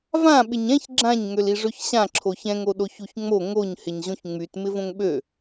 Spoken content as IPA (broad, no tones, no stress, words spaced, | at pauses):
vã ɓɪɲɛ̃ç ɡ͡ǁãɲ ŋøliʐøçɕã ǁʰoçɛ̃ŋ oɗoçuçŋ͡mo ŋoɲ hɪɲʑõçŋ͡myt mɪvõŋɓø